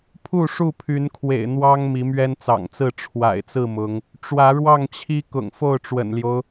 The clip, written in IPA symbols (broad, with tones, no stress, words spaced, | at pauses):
pʰu˥˨ʂu˥˨pʰy˨˦nkʰwḛ˨˩ɪ̯ n̪wɑ˦ŋ mi˨˦mɥɛ˦nt͡sɑ̰˨˩ŋt͡sɹ̩˥˨ ʈ͡ʂʰwa̰˨˩ɪ̯t͡sɹ̩˥˨mʊ˨˦ŋ | ʈ͡ʂwä˨˦ɻwɑ˥˨ŋt͡ɕʰi˦ kʊ̰˨˩ŋfo˥˨ʊ̯ʈ͡ʂwə̰˨˩nljo˦ʊ̯